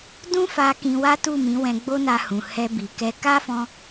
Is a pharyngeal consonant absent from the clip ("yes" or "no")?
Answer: yes